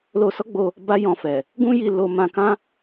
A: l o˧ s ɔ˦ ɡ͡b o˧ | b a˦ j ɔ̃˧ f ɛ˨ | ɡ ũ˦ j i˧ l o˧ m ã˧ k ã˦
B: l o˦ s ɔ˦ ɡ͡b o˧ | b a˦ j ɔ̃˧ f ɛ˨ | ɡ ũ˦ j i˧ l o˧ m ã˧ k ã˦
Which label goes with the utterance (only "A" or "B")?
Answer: A